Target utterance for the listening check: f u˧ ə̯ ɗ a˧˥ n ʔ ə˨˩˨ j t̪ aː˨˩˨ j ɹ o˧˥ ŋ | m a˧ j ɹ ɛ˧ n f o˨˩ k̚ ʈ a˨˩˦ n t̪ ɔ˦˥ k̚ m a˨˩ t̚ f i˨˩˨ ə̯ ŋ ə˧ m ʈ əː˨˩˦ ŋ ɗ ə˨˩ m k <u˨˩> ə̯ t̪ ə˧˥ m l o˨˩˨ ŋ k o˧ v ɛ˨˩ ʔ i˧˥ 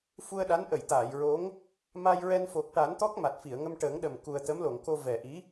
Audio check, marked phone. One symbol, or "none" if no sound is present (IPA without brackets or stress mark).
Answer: u˨˩